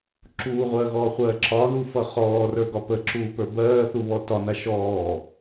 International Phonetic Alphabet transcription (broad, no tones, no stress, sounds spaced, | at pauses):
ǁ uː ʁʷ ɜː ɣ ɔː χʷ ɜː ǁ ɒ ð u f ʌ χ ɔː r ə˞ ɡ ɒ p ə ǁ uː p ə˞ b ɜː θ u β ɔ t ɒ n a ʃ ɔː